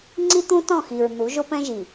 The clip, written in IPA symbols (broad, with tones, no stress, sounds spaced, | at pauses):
ŋ͡ǀ i˦ t̪ ũ˦ t ɔ̃˦˨ x i˨ ɹ n̪ u˨˦ ʒ o˦ p ɛ̃˦ ʒ i˨